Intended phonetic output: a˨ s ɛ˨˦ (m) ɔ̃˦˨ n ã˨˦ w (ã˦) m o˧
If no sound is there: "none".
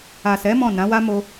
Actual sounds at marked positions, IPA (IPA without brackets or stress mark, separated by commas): m, a˦